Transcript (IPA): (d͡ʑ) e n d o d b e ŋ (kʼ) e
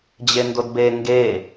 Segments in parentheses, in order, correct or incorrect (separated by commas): correct, incorrect